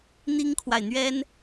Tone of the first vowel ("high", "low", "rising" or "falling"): high